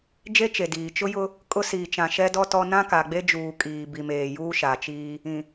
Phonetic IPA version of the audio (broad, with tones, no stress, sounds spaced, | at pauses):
d͡ʒ e˦ t͡ʃ e˨ d iː˨ t͡ʃ ʊ˦ j ʊ˦ | kʼ ʊ˦ s iː˨ t͡ʃ ã˨ ʃ ɛ˦ d ɔ˦ t ɔ˦ n ã˦ k a˨ ɡ͡b e˦ d͡ʒ uː˨ kʼ iː˨ b i˨ m eː˨ j uː˦ ʃ a˨ t͡ʃ iː˦ | ĩ˨